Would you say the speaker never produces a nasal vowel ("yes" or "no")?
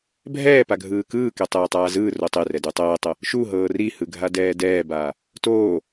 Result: yes